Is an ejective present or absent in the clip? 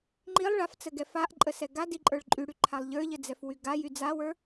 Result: present